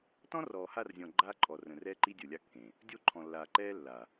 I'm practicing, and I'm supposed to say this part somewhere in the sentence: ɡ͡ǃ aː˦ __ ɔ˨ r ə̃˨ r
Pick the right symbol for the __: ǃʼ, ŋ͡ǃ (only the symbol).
ǃʼ